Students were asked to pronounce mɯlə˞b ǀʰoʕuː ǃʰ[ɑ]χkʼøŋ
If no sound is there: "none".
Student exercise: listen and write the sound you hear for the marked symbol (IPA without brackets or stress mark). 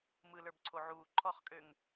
ɔ